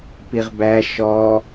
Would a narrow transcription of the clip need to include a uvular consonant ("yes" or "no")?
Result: yes